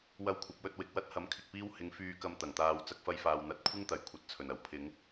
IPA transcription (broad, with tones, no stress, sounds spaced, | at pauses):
w ɐ˧ w kʷʰ ɐ˨˥ p̚ w ɵ˧ t̚ w ɪ˨ k̚ w ɐ˥ t̚ h ɐ˨˥ m kʰ ɪ˨ k̚ p iː˥ w h ɪ˨˥ ŋ f yː˧ k ɐ˧ m t̪ ɐ˨˩ ŋ t̪ aː˧ w t͡s ɐ˧ k̚ f ɐ˧ j f aː˨ w n̪ ɐ˨˥ t̚ kʷʰ ɪ˥ ŋ t̪ ɐ˨˩ j kʷʰ ɐ˨˥ t̚ t͡sʰ ɵ˨˩ n ɐ˨˩ w pʰ ɪ˨˧ ŋ